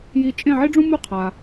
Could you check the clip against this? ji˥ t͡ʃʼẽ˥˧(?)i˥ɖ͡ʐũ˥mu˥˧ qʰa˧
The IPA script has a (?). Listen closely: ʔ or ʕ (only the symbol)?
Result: ʕ